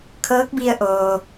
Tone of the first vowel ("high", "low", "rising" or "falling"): rising